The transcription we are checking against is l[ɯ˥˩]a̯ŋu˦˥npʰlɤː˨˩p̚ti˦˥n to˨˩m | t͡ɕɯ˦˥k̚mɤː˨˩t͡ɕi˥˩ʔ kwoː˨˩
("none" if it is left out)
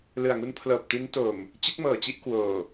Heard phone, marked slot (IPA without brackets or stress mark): ɯ˨˩